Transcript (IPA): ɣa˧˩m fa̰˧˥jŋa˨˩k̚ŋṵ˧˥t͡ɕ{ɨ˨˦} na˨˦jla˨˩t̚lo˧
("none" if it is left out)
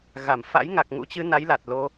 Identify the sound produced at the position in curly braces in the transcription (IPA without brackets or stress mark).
ɨ˨˦